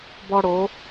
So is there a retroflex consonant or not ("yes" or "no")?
yes